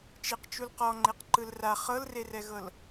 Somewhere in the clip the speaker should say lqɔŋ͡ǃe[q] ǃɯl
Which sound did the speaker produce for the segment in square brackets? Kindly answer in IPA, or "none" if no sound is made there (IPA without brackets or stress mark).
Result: q